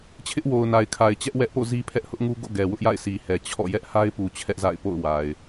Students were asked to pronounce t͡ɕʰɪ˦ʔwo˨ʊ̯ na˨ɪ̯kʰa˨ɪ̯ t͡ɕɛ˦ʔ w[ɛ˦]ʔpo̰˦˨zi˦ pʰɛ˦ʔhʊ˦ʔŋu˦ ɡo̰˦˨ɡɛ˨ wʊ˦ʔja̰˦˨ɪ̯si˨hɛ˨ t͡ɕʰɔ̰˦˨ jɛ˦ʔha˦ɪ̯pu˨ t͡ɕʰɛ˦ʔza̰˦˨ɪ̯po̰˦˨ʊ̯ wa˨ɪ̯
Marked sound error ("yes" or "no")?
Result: no